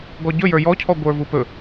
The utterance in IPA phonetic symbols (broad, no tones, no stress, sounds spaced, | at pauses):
ɡ ɔ ɟ ɵ j ə˞ j ɔ cʰ ɔ ɡʷ ə˞ v u p ɵ